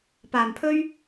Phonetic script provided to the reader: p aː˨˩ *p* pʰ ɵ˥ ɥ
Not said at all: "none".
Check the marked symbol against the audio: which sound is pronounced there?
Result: m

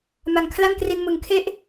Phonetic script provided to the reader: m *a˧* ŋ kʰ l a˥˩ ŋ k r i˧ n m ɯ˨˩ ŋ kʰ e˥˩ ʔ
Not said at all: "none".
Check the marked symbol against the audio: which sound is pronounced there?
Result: a˨˩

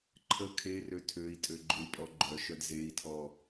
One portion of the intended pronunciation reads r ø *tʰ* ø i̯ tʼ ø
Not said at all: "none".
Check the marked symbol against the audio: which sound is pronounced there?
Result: tʰ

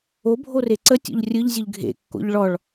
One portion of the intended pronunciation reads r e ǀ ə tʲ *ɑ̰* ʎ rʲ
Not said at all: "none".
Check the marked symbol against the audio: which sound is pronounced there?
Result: ɔ̰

